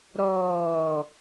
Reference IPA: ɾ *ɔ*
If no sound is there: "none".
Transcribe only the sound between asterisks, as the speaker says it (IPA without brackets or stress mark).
ɔː